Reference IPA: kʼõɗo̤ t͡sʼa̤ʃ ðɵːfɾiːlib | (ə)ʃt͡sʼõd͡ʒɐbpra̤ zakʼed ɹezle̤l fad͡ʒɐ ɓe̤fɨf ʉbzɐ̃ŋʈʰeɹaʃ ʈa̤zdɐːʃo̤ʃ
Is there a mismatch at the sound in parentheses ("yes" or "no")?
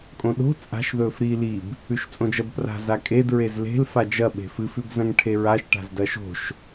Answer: yes